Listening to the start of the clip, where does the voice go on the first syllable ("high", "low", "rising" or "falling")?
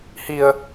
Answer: low